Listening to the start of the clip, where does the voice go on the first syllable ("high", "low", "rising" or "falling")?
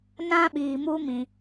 high